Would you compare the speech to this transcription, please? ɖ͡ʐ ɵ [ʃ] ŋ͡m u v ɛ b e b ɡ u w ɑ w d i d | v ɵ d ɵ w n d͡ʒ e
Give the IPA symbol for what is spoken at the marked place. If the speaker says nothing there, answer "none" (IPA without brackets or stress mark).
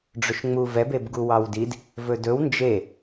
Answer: ʃ